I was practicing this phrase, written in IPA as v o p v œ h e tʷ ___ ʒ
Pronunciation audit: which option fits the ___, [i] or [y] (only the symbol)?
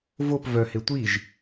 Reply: i